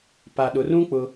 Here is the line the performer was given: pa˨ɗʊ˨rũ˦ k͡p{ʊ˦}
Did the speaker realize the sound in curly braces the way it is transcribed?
yes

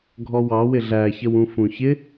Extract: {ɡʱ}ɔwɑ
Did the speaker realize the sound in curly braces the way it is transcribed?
yes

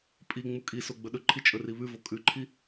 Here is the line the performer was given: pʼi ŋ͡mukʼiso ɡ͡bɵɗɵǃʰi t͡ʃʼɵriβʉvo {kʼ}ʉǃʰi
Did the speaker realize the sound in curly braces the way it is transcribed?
yes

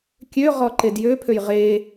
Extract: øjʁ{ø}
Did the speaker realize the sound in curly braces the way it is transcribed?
no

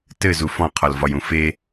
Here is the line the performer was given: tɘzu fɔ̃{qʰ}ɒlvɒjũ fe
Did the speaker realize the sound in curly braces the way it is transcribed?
yes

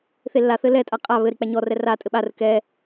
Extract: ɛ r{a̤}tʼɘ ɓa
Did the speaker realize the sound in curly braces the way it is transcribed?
no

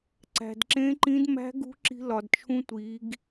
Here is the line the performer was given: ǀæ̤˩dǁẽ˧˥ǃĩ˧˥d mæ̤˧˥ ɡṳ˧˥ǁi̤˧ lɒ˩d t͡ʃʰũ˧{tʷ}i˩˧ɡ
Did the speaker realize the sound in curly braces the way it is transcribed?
yes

